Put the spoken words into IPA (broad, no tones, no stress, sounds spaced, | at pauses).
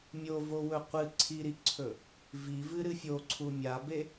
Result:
mʲ o v o w ɵ qʷ ɨ ǀʰ i ɾ i ǀʰ ɵ | v i v ɨ ɾ ɨ fʲ o ǀʰ u mʲ a b e